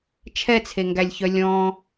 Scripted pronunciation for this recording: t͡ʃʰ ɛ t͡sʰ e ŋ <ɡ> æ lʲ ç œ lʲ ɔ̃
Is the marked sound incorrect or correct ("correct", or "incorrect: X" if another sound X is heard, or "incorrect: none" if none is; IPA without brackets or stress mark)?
correct